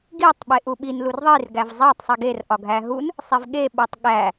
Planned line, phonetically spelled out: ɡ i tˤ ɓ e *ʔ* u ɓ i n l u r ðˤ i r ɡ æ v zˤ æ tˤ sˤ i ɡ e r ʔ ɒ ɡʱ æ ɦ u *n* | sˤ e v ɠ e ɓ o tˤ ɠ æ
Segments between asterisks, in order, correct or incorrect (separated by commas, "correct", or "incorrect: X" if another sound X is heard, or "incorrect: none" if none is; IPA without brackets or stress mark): correct, correct